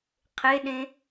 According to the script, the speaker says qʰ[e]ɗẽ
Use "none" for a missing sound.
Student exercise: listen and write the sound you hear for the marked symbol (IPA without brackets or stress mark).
e